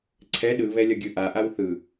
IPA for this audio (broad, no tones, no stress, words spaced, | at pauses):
ǀʰɛ ɗɯβɛ lʲʌɡʲɯʔaʔaw θɯ